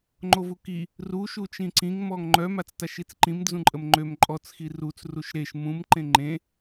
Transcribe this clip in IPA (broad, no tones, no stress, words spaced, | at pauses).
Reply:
ŋ͡ǃovuki | ru ʃut͡ʃĩǀĩŋ mɔŋŋ͡ǃœ mat͡staʃit͡sǃĩm d͡zũǃʼəmŋ͡ǃøm ǃʼɔt͡s xirut͡s ruʃɾeʃ mũm ǃẽŋ͡ǃẽ